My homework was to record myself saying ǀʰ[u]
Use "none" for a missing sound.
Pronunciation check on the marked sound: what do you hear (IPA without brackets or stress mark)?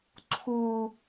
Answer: u